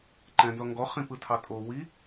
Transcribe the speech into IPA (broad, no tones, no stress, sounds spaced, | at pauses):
ǃ ɛ̃ n z ɔ ŋ ɡ ɔ χ ĩ p ɯ tʰ ɑ tʼ o w i